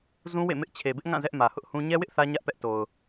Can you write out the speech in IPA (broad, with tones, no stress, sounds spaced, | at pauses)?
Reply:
z ũ˦ w ḛ˦˨ m ɪ˦ ʔ t͡ɕʰ e˨ b ɪ˦ ʔ ŋ ã˦˨ z ɛ˦ ʔ m ä˨ h ʊ˦ ʔ h ũ˦ ɲ ɛ˦ w ɪ˦ ʔ θ ä˦ ɲ ä˦ ʔ p ɛ˦ ʔ t o˨ ʊ̯